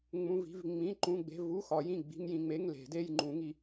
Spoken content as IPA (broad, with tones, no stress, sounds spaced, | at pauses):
ŋ͡m ũ˧˥˧ v i̤˧˥˧ v ŋ͡m ĩ˧˥˧ ǃ ũ˧˥˧ ɡ͡b e̤˧˥˧ v u˧˥˧ x ɒ˨˩˦ j ĩ˦˨ ɡ͡b i̤˧˥˧ ŋ j ĩ˦˨ ŋ͡m e˧˥˧ ŋ l e̤˨˩˦ d e˧˥˧ j ŋ͡ǃ ũ˨˩˦ ŋ i˨˩˦